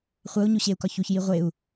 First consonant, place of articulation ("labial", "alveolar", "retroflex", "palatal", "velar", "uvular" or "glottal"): uvular